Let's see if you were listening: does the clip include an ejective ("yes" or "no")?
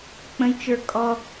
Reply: yes